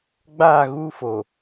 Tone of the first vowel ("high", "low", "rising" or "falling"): falling